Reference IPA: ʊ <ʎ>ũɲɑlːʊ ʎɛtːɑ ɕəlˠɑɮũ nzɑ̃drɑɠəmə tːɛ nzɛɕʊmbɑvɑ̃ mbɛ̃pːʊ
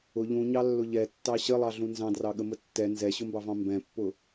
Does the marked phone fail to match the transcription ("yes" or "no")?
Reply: no